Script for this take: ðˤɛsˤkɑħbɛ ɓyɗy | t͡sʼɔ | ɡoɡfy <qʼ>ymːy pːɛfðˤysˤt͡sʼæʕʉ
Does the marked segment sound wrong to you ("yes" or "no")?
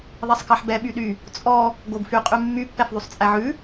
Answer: no